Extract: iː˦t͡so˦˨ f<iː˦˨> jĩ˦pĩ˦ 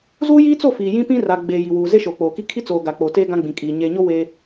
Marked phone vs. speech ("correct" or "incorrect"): incorrect